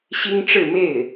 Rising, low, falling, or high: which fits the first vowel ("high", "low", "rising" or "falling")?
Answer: high